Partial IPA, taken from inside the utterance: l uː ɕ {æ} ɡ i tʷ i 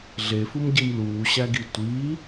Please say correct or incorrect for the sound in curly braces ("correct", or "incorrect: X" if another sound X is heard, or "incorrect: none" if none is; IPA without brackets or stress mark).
correct